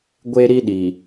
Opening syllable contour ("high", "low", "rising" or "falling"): high